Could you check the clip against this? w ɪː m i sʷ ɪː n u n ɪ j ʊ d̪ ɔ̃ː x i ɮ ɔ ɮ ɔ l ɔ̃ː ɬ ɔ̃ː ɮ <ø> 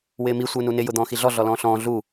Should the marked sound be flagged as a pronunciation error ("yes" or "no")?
yes